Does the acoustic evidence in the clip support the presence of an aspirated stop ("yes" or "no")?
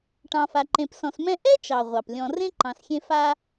no